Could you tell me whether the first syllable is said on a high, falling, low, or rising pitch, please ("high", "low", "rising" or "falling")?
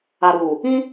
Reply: low